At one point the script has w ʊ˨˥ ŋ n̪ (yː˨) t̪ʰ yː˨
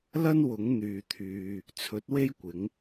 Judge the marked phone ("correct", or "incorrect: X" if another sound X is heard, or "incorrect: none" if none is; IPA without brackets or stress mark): correct